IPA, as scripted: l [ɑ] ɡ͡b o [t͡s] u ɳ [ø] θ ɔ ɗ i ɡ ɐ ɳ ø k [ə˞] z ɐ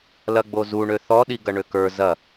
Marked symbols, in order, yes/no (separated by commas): no, no, yes, yes